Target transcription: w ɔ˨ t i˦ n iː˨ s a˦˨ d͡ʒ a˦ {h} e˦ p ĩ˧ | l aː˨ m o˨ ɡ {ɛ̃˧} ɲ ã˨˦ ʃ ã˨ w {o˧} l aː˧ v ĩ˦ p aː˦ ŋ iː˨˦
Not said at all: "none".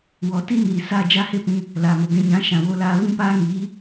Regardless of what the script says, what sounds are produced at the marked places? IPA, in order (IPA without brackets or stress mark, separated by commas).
h, ɛ̃˧, o˧